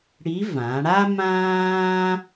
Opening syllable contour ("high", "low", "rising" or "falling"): rising